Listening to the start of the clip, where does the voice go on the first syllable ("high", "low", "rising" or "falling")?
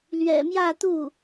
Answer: low